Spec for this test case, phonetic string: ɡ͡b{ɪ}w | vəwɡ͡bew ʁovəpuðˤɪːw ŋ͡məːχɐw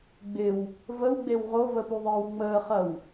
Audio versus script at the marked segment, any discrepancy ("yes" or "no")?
no